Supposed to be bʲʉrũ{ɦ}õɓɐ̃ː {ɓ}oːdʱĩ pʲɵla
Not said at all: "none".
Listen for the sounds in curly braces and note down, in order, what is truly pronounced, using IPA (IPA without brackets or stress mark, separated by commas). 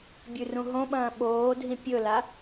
ɦ, ɓ